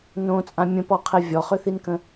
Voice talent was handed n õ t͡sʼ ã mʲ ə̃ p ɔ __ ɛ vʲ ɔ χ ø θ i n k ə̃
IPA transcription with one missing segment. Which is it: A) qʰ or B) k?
A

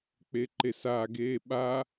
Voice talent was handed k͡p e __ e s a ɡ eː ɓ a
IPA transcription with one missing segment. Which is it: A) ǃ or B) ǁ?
A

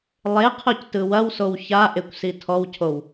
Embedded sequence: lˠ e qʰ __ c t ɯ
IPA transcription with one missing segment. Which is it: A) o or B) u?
A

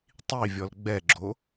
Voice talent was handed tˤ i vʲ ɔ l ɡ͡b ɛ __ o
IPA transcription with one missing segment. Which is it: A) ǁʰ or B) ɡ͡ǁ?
B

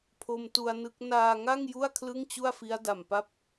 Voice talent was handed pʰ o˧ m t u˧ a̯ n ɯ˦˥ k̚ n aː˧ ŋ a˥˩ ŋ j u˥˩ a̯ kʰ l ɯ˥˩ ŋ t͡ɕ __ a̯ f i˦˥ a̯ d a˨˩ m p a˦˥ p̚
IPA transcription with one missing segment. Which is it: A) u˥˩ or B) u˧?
A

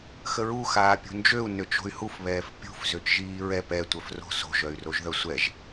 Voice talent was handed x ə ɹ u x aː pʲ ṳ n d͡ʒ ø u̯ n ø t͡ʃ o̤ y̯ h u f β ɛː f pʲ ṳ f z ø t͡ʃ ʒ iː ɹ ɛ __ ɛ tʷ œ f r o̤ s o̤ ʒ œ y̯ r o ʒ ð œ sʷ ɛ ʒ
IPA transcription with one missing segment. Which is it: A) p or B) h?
A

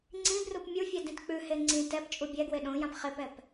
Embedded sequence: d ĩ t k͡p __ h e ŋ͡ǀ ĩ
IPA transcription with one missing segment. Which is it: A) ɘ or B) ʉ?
B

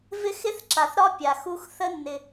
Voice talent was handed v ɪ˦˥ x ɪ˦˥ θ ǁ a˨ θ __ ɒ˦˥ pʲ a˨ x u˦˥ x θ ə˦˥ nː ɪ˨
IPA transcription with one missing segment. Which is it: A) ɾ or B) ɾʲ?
A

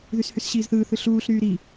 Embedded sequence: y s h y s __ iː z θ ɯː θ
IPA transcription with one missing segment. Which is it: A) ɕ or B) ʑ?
A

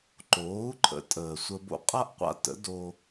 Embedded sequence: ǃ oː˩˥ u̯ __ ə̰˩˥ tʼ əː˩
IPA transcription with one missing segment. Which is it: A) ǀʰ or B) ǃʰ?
B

